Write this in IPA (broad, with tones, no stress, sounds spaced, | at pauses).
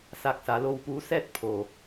s a˧ k̚ s a˩˧ l o˧ w p uː˧˥ s ɛː˥˨ t̚ pʰ oː˩